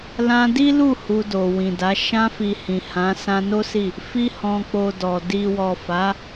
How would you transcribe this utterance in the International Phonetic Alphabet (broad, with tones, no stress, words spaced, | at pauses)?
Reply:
lã˧ di˦lu˦˨ hu˧do˨wĩ˨da˨˦ ʃã˧fi˨ hĩ˨hã˨˦ sã˧no˦si˦˨ | fi˧ hɔ̃˨k͡po˨ dɔ˨ di˨wɔ˨ fa˨˦